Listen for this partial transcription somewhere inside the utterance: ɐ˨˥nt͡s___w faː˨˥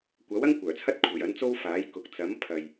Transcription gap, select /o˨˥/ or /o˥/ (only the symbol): o˥